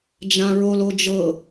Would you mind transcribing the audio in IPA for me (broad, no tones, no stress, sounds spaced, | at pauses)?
d͡ʒ ã ɹ o l o d͡ʒ ɤ